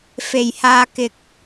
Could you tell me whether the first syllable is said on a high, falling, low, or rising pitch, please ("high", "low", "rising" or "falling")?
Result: low